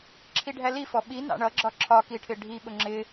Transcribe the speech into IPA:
ǁʰ i ɖʱ æ l i f ɔ ɓ i n ɑ̰ ɳ ʌ ɡ͡ǁ ɒ ǁʰ ɒ k i ʈʰ ɪ ɖʱ i ɓ ʊ ŋ͡ǁ ɪ

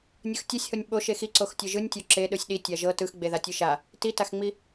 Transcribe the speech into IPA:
nʲ ɯ x tʲ o sʲ h o nʲ ɓ o ʃ e x i ǀ o x tʲ ɤ ʒ ɯ nʲ tʲ o ǁ e ɗ ɯ sʲ ɗ i tʲ a ʒ ɤ t ɯ x ɡ͡b e ð a tʲ ɯ ʃ a | t i t a x ŋ͡m i

